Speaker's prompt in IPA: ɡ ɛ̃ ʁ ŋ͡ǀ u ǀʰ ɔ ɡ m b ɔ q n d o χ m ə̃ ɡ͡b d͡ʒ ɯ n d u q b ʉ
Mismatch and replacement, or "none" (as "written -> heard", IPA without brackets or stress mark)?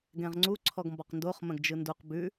ɡ͡b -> ɡ